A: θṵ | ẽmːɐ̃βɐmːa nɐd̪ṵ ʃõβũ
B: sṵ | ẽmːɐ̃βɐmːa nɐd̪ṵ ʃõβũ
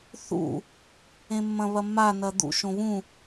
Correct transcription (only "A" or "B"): A